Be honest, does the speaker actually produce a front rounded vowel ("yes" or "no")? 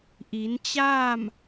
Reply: no